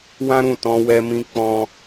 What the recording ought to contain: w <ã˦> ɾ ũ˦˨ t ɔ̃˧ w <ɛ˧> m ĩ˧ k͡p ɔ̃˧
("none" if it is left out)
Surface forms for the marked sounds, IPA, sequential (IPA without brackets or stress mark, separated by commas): ã˦, ɛ˧